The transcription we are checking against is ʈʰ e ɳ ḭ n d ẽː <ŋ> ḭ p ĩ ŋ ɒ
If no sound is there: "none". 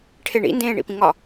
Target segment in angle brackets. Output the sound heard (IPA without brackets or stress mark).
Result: ɳ